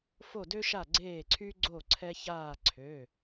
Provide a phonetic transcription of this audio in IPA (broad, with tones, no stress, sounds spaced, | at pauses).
f o˧˩ d ø˧ ʃ a˧˩ ɡ͡ǀ eː˧˩ ǀʰ y˧ ɡ͡ǀ o˧˩ ǀʰ ɛ˧ ç aː˧˩ ǀʰ ø˩˧˩